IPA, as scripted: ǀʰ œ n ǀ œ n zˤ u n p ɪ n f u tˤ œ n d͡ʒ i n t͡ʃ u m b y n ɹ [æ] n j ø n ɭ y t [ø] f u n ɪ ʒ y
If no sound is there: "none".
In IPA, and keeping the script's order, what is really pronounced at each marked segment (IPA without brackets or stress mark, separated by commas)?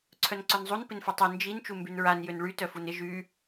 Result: a, œ